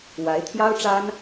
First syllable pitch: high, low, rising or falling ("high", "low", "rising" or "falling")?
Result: rising